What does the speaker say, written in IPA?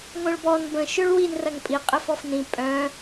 ŋʷ œ̃ ɭ b ɔ n b ə̃ ʃ ø ɭ w i n r ɐ ŋ pʼ i qʼ ɪ f ɔ f n ĩ pʼ œ̃

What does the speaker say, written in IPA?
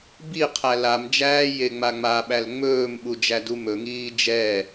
b i qʰ æ l a m d͡ʒ æː j e ŋ͡m a ŋ͡m a ɓ æ l ŋ͡m ɵː m ɓ u d͡ʒ æ d u m ɵ ŋ iː d͡ʒ ɛ

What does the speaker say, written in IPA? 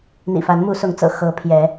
n̪ ḭ˨˩ f a˨˦ n m u˨˦ s ʊ˨˦ ŋ t͡s ɤ̰˨˩ x ɤ˨˦ pʰ j ɛ˨˦

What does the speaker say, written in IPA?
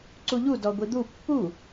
ǀ u ʎ u d ɔ ɡʷ i d̪ u pː u

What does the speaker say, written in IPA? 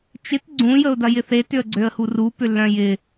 t͡ʃ ɪ t ɡ͡ǀ ũ j ə ʊ̯ d ɐ j ɪ θ e t ʏ ə̯ ɡ͡ǀ ø ə̯ h u r u p ʏ lː œ̃ j ɪ

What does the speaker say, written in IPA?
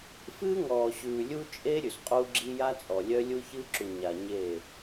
f ɨː˦ ŋ ɔː˨ ɕ ʉː˨ lʲ u˦ t͡ʃʼ e˦ ɾʲ ʉ˨ s qʼ u˦ ɡ͡ǁ i˦ j a˦ t͡sʼ ɔ˨ lʲ œ˦ lʲ u˦ ç ɨː˦ ǁ u˨ ɲ a˨ ɲ eː˦˨

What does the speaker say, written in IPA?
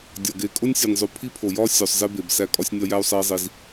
dʲ ɒ˨ ɡ e˨ kʼ o˦ nʲ sʲ o˨ nʲ zˤ u˨ pʰ i˦ pʰ o˨ j ɒ˦ sʲ o˨ sˤ z e˦ b e˨ b s æ˦ kʼ ɒ˦ sʲ nʲ ɒ˦ j æ˦ u̯ sˤ e˦ i̯ zˤ i˦ z

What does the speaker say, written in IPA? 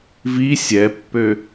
v i sʲ ɛ pː ø

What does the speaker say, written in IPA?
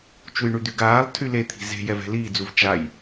t͡ʃ u j ɳ y d̪ y ɡ aː lˠ tʰ y l e t̪ʰ i̤ z e̤ j ɛ v ɛ̤ l iː d͡z u v t͡ʃ a j

